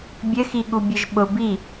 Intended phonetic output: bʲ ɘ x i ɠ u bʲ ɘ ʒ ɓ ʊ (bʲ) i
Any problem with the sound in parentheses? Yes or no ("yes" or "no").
yes